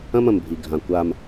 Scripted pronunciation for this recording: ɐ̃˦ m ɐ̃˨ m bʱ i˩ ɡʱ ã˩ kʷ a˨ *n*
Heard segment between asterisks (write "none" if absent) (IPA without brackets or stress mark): m